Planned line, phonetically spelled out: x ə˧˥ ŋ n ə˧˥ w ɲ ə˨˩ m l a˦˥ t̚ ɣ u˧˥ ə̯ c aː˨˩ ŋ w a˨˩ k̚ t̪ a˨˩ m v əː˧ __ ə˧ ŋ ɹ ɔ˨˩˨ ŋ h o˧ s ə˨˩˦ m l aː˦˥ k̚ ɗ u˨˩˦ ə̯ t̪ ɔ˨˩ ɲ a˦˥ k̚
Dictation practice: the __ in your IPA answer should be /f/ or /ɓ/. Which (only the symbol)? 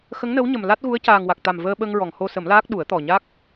ɓ